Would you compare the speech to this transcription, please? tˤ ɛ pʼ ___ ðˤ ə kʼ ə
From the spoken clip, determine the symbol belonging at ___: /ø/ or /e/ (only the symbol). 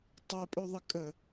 ø